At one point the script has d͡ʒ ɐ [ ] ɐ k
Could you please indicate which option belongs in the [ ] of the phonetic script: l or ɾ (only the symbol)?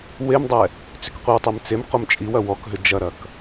ɾ